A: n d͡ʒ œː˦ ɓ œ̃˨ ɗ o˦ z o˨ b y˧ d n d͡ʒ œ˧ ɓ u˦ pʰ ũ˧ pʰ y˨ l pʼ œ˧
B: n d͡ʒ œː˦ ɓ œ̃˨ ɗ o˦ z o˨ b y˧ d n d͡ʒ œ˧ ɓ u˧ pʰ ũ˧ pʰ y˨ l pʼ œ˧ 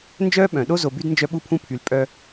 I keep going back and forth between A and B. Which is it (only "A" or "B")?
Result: B